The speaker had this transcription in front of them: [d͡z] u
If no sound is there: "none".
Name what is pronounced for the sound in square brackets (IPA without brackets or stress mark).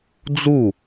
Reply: d͡z